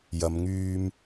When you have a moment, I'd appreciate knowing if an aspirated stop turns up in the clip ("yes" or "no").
no